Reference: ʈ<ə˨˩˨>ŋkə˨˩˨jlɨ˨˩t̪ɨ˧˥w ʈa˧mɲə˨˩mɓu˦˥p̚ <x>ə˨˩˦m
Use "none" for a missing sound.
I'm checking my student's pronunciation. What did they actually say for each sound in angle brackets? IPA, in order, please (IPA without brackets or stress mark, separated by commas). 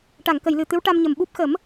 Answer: a˨˩˨, x